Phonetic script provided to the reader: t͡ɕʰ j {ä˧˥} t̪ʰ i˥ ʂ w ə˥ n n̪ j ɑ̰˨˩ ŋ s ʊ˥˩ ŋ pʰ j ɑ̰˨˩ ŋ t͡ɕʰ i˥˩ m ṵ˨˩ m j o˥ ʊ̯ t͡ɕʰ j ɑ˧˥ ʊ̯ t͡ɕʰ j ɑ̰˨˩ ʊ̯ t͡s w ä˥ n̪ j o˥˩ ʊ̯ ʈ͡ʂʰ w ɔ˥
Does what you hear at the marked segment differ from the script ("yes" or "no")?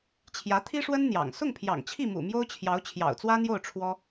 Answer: no